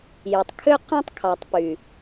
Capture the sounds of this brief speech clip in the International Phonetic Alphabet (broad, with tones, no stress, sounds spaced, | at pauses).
j ø˨ tˤ kʰ ø˦ q æ̃˦ tˤ kʰ ɑ˨ tˤ p y˨